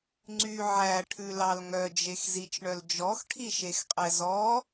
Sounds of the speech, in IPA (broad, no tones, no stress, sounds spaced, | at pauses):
ŋ͡ǀ y ʕ æ ʈʰ ʉ l ɑ l ŋ œ d͡ʒ e x z i t͡ʃ ɳ œ l d͡ʒ ɔ x ʈʰ i ʃ e x qʼ ɛ z ɔ